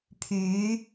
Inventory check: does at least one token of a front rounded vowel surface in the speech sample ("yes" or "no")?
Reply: yes